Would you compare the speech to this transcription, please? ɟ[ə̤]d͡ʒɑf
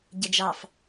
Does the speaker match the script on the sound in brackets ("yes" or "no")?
no